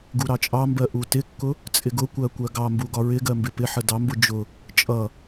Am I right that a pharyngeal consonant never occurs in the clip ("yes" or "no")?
no